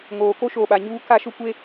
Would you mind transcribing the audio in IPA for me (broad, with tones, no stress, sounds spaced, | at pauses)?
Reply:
ŋ oː˨ k o˦ ʃ oː˨ ɓ a˨ ɲ uː˦ k a˦ ʃ ʊ˦ kʷ e˦